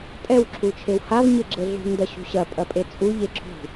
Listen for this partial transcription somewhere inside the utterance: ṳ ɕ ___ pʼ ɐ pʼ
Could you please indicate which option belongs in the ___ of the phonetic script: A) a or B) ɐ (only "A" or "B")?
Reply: B